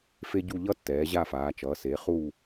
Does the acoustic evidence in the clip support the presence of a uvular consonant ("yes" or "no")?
yes